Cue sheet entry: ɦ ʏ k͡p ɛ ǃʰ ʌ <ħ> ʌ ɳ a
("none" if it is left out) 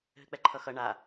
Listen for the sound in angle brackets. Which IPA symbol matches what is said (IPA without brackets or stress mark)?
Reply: x